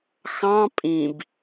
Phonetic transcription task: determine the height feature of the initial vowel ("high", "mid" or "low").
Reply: low